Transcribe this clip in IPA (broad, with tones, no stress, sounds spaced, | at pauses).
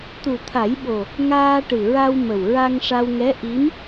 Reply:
t̪ u˨˩ t̪ʰ a˨˩˦ j ɓ o˨˩ | ŋ aː˧ ʈ ɨ˨˩ ɹ a˧ w m ə˨˩ w ɹ a˧ ŋ ʂ a˧ w ŋ ɛ˧˥ ʔ i˧˥ m